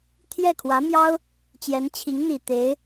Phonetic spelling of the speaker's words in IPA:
t̪ʰ j ɛ˥˩ kʰ w ä˧˥ m j ɑ˥ ʊ̯ | t͡ɕ j ɛ˧˥ n t͡ɕʰ i˧˥ ŋ n̪ i˨˩ t̪ e˧˥ ɪ̯

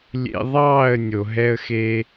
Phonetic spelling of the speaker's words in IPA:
lʲ ḛ˧ ðˤ ɑː˦˨ ə̯ nʲ o˨ ɦ ɛ˧ ə̯ x eː˧

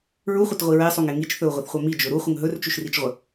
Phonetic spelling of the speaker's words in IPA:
ɹ u χʷ ə t ʁʷ i ɹ e sˤ u ŋ e ŋ i t͡ʃ θ ɵ u̯ ʁʷ ɪ θ χʷ œ m i d͡ʒ ɵ ɾ u χʷ ə ŋ ɦ ɵ r t͡ʃ ʉ ʃ r i t͡ʃ ʁʷ ə

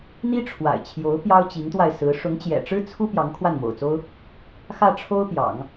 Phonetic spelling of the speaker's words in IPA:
n̪ i˥ ʈ͡ʂʰ w a̰˨˩ ɪ̯ t͡ɕʰ j o˧˥ ʊ̯ p j ɑ˥ ʊ̯ t͡ɕ i˧˥ ŋ t̪ w a˧ ɪ̯ s ɹ̩˧˥ ʂ ʊ˧˥ ŋ t͡ɕ j ɛ̰˨˩ ʈ͡ʂ ɻ̩˥ t͡sʰ u˥ p j ɑ˧˥ ŋ kʰ w a˥˩ n m o̰˨˩ ʊ̯ t͡s o˥ ʊ̯ | x ä˥˩ ʈ͡ʂʰ o˥ ʊ̯ p j ɑ̰˨˩˦ ŋ

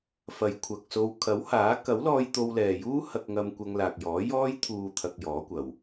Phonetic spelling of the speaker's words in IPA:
f ɐ˨ j kʷʰ ɐ˨ k̚ s o˧ w kʰ ɐ˨˥ w h aː˨˥ k ɐ˨˥ w l ɔː˧ j t̪ o˧ w l ɛː˨ j uː˥ h ɐ˧ k̚ ŋ ɐ˧ m kʷ ɐ˧ ŋ l aː˨ k̚ j ɔː˨˥ j ɔː˧ j t̪ʰ uː˨ t̪ʰ ɐ˧ k̚ j ɔː˨˥ kʷ ɐ˨ w

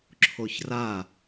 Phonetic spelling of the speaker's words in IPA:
ǁʰ o ç r a

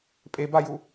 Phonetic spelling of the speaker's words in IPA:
pʼ e b a j u

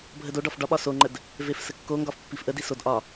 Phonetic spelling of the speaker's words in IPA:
bʱ ə d o ɖ ɒ f ɖ ɒ ɓ ɒ s o ŋ͡ǃ ə d | v e f s ə kː o ŋ ɡ ɒ f pː i f ʔ ə d i s o d ʔ ɒ

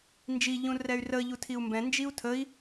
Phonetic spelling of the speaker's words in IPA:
n d͡ʒ i ʎ ũ r ɛ y̯ r ə ʎ u tʰ i u̯ m b ɛ̃ n d͡ʒ i u̯ tʰ ə i̯

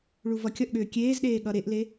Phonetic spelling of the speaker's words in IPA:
ɭ u v ʌ kʲ ʌ ʔ ɠ ʏː kʲ eː z ɗ eː ɠ ʌ ɾ e ʔ l e

